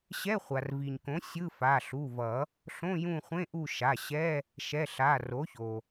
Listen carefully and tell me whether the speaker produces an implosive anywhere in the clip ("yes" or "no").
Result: no